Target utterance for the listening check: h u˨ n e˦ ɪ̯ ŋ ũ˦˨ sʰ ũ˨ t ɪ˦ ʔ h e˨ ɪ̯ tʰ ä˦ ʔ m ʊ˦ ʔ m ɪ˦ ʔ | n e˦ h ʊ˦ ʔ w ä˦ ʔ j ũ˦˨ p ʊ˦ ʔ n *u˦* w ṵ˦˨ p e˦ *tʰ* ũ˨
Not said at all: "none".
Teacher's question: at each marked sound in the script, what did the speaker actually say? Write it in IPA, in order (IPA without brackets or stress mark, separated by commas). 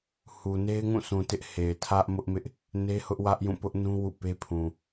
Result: ũ˦, pʰ